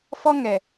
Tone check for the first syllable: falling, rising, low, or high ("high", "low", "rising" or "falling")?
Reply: high